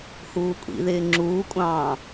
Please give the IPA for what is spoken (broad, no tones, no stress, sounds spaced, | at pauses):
h uː kʷʼ ḭ ð ɪː ŋ͡ǁ uː kʷʼ ɑ̃ː